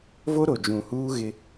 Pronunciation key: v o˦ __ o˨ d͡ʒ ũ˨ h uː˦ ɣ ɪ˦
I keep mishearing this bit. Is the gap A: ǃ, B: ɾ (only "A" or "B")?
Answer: B